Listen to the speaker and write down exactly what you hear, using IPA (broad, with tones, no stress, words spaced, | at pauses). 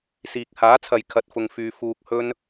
siː˨k̚ haː˨˥t͡sʰɐ˨j kʰɐ˧t̚fʊ˧ŋfyː˧ fuː˧k̚hɵ˥n